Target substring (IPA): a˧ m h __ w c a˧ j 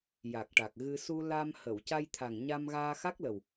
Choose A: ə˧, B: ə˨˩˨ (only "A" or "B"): B